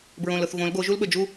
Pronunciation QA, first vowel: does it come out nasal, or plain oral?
nasal